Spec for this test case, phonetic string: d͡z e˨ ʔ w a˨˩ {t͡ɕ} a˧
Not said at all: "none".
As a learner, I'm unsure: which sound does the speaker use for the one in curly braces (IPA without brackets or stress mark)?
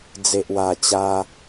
t͡ɕ